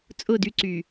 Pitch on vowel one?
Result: falling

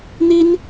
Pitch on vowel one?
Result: high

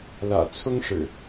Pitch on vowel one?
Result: low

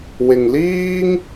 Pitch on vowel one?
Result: low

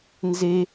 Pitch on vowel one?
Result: high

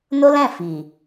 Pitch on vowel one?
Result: high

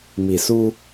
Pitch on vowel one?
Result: low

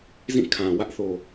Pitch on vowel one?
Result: falling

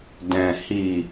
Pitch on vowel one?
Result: low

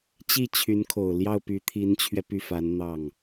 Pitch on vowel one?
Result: falling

